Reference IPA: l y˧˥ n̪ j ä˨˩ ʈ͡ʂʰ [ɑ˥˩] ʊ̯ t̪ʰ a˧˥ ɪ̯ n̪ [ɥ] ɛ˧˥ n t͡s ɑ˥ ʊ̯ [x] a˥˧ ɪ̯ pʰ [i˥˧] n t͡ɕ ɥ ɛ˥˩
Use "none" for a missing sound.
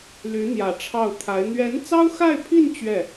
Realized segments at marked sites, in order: ɑ˥˩, ɥ, x, i˥˧

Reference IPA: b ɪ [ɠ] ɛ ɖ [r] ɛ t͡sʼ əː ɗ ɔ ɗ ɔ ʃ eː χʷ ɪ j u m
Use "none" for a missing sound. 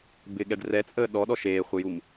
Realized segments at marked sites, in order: ɠ, r

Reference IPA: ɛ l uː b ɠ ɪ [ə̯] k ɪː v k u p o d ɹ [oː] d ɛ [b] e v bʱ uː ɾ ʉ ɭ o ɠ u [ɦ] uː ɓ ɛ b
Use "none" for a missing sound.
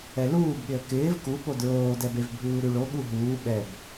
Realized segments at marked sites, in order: ə̯, oː, b, ɦ

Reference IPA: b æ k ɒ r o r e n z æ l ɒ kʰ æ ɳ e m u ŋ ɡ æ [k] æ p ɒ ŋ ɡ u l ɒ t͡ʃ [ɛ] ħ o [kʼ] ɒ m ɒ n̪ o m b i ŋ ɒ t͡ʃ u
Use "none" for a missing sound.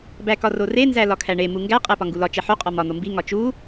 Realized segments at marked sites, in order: qʼ, e, qʼ

